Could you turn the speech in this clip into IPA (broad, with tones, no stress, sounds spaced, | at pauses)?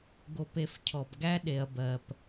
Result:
ɡ o˧ p e˧ f cʰ ɔ˨ b ɡ æ˦ ɗ e˨ ɐ̯ b ɜ˨ p